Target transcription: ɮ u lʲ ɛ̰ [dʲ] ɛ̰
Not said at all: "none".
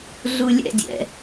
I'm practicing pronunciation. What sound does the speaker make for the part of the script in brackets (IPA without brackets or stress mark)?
dʲ